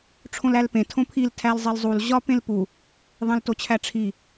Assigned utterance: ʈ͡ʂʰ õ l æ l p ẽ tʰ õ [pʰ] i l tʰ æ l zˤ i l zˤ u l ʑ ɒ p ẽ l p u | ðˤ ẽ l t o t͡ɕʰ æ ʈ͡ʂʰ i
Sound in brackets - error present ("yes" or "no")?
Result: no